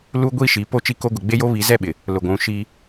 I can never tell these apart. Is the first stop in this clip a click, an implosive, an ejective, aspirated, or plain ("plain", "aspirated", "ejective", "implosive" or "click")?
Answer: plain